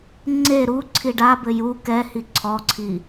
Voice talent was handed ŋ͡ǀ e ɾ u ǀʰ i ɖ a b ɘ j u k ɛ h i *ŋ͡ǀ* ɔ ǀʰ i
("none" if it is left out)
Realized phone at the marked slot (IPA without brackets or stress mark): ǀʰ